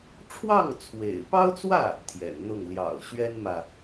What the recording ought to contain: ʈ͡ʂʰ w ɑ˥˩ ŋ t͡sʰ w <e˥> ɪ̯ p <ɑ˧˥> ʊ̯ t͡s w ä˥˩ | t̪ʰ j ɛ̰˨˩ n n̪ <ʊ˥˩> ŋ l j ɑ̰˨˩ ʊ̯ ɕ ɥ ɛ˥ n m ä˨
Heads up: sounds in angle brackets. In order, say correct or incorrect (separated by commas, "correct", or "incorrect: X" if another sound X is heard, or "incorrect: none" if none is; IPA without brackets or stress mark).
incorrect: ḛ˨˩, incorrect: ɑ˥, correct